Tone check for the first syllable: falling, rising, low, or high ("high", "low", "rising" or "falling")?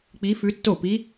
rising